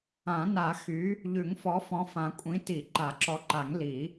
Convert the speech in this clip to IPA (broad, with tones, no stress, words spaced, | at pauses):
ã˨˩˦na˨˩˦ xy˨˥ | ʎʉ˨˩˦ŋfɔ˨˥ fɔ̃˨˥fã˨˩˦kʷʼĩ˨˥ ti˨˩˦ǃa˨˩˦ǁɔ˨˥ǃa˨˩˦ŋ li˨˩˦